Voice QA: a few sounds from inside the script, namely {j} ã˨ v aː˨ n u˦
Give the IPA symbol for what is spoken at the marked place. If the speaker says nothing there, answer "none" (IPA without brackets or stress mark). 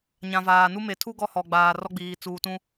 ɲ